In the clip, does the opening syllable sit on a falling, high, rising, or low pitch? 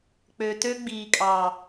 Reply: low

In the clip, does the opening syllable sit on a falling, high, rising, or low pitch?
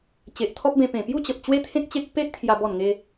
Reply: low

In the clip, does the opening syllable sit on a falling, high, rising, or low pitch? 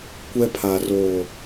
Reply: high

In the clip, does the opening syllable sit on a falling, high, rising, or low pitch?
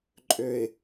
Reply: low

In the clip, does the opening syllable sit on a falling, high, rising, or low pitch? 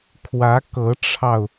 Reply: rising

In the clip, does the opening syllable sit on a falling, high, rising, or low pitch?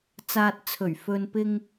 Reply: low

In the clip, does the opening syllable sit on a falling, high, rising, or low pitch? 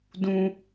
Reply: high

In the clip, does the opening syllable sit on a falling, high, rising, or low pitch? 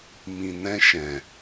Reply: low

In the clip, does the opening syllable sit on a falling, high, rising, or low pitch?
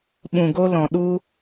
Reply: low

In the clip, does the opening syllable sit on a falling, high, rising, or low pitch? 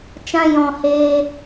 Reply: high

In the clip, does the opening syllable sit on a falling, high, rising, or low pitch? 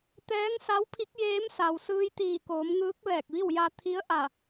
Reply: rising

